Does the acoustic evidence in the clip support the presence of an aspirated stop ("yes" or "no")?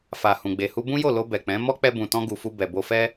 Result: no